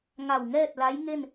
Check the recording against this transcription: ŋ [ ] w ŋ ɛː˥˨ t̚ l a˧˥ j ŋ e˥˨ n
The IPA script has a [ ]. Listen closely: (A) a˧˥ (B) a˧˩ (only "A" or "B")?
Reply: B